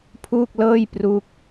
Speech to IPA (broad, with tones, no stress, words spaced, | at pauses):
pʰuː˥˩k̚lɤː˥˩jpru˦˥k̚